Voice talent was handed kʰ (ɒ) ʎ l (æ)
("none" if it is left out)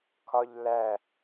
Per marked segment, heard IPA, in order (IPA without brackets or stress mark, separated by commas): ɒ, æ